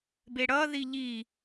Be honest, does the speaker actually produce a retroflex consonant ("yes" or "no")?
yes